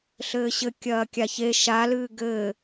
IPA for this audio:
ɬ ɘː ɕ ɘ kʲ ɐː kʲ a ç e ʃ a l ɨː ɡ ɘː

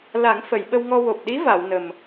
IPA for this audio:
l a˨˩˦ ŋ f ə˨˩˨ j ɓ ə˧ w ŋ ɔ˧ w o˨˩ p̚ ɗ i˧˥ v a˨˩˨ w n ə˨˩ m

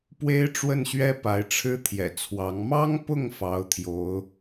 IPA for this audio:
p w e˥ ɪ̯ ʈ͡ʂ w ə˥˩ n ɕ ɥ ɛ˥ p a˧˥ ɪ̯ ʈ͡ʂʰ ɻ̩˥ t̪ʰ j ɛ̰˨˩ t͡sʰ w ɑ˧˥ ŋ m ɑ˥ ŋ p ʊ˥˩ ŋ f ɑ˧˥ ʊ̯ t̪ʰ j o˧˥ ʊ̯

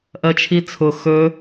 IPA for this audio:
ʔ ɜ t͡ʃʰ i t͡sʰ ʊ x ɵ

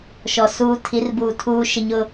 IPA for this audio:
ʃ ɔ˨ s uː˨ tʰ i˨˦ r b uː˨ tʰ uː˨ ʃ ɪ˨ ɲ ʊ˨

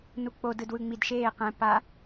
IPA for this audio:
n u k͡p o d ɯ d w ɯ ŋ͡m i d ʃ eː q ɛ̃ p a

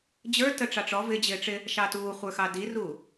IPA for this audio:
d͡ʑ ə˞ t ə ʈ͡ʂ ɑ ʈ͡ʂ ɔ v ɪ d͡ʑ ɪː ʈ͡ʂ ɪ | ʃ ɑ t uː χʷ ə˞ x ɑ d i r uː

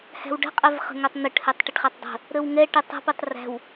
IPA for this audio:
h æ̤ w ɖ ə̤ qʼ ɛ v χ ə̤ ŋ œ tˤ n̪ ə ʈ h ɛ tˤ ʈ ɪ ʈ χ æ tˤ dˤ ə̤ | ɾ ə w ŋ ɛ ʈ ɪ tˤ ə̤ p ɪ tˤ r æ̤ w

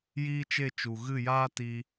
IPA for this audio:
j iː˦ t͡ʃ e˦˨ t͡ʃ u˨ ɣ ɨ˦˨ j aː˦ t i˧

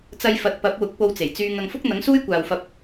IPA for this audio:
t͡s ɐ˧ j f ɐ˨ t̚ p ɐ˨˥ p̚ w ʊ˨˥ k̚ p o˧ w t͡s e˨˩ j t͡s yː˧ ŋ ɐ˧ ŋ f ʊ˥ k̚ n̪ ɐ˨˥ ŋ s uː˥ j kʷ aː˨ w f ɐ˧ p̚

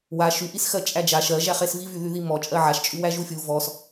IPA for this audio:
w a ʃ y ʔ i s x ɜ t͡ʃʼ æ d͡ʒ a ʃ ɜ ʒ æ χ e s v i v y ð y ð i m ɔ t͡ʃʼ ɜ ʕ a ʃ t͡ʃʼ y w æ ʒ u fʲ u v ɔ s

